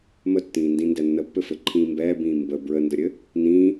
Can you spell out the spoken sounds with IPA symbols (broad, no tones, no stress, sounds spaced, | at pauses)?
m ə tː ĩː n d ĩ n d ɛ nː ə pː ɘ f ɘ ǃʰ ĩː m b ɛː b ĩː m b ə b ɹ ə n d ə ɾʲ ɘ | n ĩ